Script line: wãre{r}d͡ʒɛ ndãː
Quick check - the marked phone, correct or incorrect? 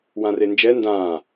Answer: incorrect